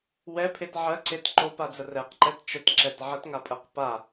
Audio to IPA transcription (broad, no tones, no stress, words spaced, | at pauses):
wɛpʰet ʕɜǀet ǃopad͡zə rɛqǃɛt t͡ʃətǁɛt ʕətŋapʼɜq pa